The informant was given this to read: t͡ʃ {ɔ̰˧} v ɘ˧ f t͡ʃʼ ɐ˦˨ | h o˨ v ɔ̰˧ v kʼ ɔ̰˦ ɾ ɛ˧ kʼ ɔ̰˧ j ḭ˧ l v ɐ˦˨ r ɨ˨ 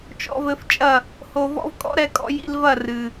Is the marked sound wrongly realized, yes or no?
no